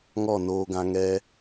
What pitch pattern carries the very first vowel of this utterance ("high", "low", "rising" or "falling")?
falling